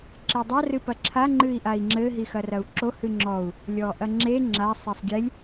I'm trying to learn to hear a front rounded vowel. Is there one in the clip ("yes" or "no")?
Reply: no